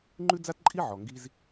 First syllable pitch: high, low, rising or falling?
high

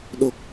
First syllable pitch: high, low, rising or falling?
low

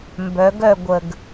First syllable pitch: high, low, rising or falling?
rising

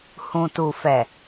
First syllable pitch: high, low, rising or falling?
low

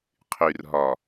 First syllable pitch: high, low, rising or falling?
low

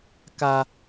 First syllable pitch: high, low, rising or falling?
high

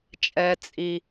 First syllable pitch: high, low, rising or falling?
low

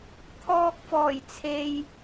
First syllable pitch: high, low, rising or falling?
low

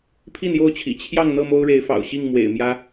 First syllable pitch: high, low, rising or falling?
falling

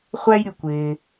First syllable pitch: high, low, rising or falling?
high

